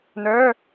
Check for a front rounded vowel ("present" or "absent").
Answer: present